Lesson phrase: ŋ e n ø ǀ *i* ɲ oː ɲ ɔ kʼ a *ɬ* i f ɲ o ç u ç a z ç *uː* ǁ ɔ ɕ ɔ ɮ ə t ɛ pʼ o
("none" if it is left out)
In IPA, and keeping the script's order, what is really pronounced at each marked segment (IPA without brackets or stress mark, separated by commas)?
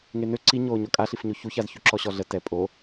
i, ɬ, u